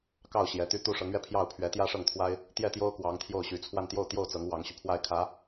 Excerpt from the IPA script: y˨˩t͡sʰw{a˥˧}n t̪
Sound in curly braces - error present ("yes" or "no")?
no